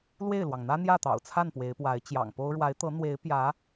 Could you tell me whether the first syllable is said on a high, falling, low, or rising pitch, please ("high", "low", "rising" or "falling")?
falling